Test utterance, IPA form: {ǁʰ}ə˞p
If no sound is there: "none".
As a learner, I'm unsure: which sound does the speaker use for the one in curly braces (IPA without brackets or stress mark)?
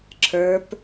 ǁʰ